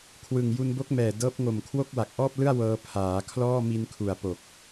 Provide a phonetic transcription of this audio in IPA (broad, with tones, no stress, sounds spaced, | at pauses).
kʰ w ɯ˨˩ ŋ j u˧ n b o˦˥ k̚ m ɛː˨˩ d ɤː˦˥ p̚ ŋ o˨˩ m kʰ w o˥˩ k̚ w a˨˩ k̚ ʔ ɔː˥˩ p̚ l ɯ˥˩ a̯ w ɤː˧ pʰ aː˩˦ kʰ l ɔː˥˩ m i˧ n kʰ u˨˩ a̯ p o˨˩ k̚